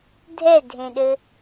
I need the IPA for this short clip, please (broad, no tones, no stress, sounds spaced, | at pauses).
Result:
dʱ ɛ dʱ ẽ ɗ ɘ